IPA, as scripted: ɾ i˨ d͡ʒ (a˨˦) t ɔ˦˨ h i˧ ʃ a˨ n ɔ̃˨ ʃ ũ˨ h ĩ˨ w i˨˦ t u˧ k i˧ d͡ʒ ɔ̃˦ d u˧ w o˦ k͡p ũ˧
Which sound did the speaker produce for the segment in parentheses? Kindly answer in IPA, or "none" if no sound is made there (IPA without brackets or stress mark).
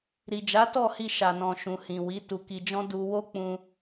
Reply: a˨˦